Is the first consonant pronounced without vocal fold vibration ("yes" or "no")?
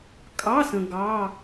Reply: yes